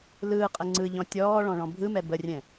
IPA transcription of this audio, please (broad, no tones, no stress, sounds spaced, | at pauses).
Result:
l ɯː qʼ ə ŋ͡ǀ ɯ ʎ ɔ̃ tʲ ɔː ɭ ɔ̃ ɭ ɔ̃ bʱ ɯ m ɛ b ə rʲ ɛ̃